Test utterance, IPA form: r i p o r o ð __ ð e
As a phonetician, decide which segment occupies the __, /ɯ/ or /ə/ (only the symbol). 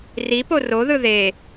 ɯ